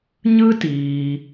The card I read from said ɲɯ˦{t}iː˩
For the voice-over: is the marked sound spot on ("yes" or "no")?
yes